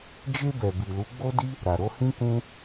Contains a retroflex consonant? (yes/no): no